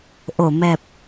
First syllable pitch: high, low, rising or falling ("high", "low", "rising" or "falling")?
low